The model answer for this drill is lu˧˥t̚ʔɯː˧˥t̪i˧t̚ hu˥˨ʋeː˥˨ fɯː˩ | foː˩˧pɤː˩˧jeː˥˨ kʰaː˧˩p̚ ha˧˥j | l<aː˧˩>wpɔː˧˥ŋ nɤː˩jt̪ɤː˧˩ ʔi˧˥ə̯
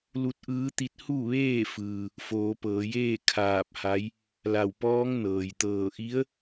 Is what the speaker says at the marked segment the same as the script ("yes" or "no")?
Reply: no